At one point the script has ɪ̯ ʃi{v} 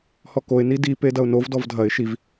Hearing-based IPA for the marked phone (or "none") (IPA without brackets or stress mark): v